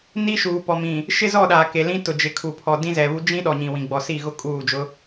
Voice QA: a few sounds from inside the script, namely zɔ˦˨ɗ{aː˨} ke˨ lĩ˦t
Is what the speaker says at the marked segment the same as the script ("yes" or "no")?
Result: yes